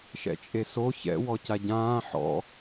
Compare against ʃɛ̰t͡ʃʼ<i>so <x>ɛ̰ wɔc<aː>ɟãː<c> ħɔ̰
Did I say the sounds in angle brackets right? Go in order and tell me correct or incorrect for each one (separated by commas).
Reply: incorrect, incorrect, incorrect, incorrect